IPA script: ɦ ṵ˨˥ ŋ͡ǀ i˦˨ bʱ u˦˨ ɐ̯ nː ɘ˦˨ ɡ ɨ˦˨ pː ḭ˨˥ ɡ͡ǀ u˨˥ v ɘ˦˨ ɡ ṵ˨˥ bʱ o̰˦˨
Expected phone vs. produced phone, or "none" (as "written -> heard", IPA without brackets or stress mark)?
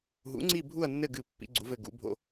none